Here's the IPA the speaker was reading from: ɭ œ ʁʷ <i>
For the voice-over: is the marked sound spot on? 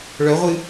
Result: no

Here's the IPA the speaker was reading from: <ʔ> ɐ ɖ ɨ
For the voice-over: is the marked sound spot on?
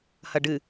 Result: no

